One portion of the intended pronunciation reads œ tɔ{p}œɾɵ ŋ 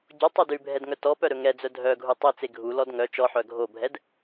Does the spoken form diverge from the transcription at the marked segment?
no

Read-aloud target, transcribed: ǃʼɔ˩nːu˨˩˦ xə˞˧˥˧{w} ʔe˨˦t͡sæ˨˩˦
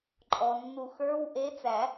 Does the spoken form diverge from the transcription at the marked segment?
no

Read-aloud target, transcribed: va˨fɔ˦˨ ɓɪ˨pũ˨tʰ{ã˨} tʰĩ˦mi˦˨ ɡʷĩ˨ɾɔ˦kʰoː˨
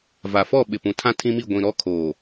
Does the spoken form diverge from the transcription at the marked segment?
yes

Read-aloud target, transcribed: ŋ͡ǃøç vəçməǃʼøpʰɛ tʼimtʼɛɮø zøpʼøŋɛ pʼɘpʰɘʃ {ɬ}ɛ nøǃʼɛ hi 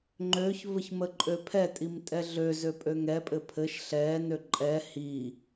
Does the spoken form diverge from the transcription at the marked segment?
no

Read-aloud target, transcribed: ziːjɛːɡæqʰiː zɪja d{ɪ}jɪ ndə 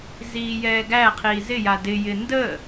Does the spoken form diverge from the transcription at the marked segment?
no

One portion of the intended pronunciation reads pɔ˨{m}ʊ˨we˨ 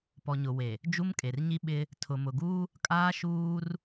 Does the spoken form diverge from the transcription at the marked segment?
yes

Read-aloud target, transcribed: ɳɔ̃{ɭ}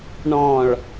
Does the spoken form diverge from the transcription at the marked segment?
no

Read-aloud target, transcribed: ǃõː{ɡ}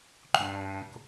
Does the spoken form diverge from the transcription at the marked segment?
yes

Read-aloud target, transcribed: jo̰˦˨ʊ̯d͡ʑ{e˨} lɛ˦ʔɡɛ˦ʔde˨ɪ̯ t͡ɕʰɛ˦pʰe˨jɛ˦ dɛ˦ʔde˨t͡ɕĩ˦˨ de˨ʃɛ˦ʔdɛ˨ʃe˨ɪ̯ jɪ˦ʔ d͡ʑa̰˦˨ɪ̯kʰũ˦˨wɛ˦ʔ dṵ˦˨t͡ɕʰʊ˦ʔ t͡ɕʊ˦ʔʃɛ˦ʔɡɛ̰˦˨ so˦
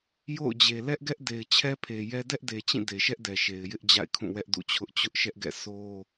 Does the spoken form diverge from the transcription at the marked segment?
no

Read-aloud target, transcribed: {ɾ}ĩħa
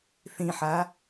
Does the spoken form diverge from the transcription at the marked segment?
yes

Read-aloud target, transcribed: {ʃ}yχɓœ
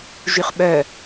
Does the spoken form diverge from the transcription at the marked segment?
yes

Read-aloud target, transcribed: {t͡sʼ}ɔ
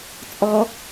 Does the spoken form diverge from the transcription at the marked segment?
no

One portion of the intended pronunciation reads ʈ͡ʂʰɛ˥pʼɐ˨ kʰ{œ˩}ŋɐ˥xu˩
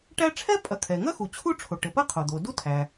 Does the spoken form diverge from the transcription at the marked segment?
yes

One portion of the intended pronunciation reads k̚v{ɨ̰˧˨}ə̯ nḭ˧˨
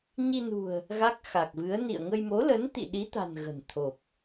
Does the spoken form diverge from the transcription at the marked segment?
yes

